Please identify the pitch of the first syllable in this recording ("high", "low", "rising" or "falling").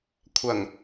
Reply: low